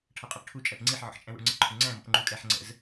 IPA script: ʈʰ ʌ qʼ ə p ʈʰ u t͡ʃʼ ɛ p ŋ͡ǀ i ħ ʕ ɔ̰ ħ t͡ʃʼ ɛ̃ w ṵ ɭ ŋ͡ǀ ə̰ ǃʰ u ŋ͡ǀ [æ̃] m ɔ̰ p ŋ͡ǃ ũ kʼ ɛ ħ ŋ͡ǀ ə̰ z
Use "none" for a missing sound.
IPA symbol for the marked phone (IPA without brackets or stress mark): æ̃